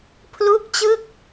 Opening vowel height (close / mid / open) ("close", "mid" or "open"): close